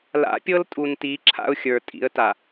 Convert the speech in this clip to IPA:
l a̰˨˦ pʲ ɤ˦ l tʼ u˨ n t i˨˦ ǁʰ a̰˦ ʊ̯ xʲ ə˞˨ tʼ ḭ˨˦ ə̯ t a˨

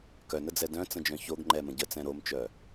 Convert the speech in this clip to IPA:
k œ n ə d͡z ɛ d œ̃ t͡s ə̃ d͡ʒ œ̃ ç o ɡ ŋ͡ǃ ɛ m ə̃ ɟ ə t͡s ɛ̃ ɾ o m t͡ʃ œ

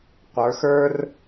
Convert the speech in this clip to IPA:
qʷ ə˞˩˧ x ə˞˦ r

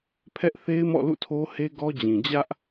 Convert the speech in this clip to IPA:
pʰ ɛ˦ ʔ θ e˦ ɪ̯ m ɔ̰˦˨ l ṵ˦˨ tʰ o˦ h e˦ ɡ ɔ˦ d͡ʑ ĩ˨ d͡ʑ ä˦ ʔ

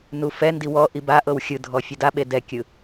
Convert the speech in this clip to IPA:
n u f ɛ n d i w ɔ ʔ i b a ʔ ɤ w xʲ ɯ dʱ ɔ fʲ ɤ d a ɓ e d ɛ kʲ ɯ

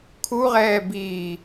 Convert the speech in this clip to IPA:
kʰ u ʁ ɛː b iː

